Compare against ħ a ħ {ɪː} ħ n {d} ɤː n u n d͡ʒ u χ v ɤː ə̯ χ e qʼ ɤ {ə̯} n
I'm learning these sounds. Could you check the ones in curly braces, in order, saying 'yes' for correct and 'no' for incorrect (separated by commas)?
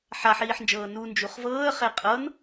no, no, no